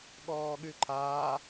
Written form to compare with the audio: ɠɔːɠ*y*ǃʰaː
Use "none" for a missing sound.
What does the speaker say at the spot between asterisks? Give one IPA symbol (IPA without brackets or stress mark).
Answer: y